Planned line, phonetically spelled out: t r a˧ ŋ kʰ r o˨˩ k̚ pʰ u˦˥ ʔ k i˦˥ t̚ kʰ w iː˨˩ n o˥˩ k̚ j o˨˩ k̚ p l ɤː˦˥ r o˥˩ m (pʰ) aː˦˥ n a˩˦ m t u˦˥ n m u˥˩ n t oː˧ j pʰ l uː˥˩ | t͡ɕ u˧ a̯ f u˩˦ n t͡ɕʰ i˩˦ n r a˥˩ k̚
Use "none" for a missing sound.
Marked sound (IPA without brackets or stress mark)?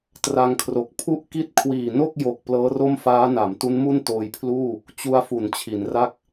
f